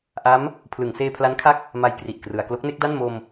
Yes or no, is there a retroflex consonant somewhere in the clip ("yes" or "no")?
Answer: no